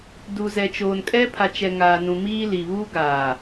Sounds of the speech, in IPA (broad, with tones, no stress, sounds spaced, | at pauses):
d u˨ z ɛ˨ t͡ʃ oː˨ n kʼ ɛ˦ pʰ a˨ t͡ʃ ɛ˨ ŋ aː˨ n ũ˨ m iː˦ l i˨ β uː˦ ɡ aː˨